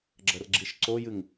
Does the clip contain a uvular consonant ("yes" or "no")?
no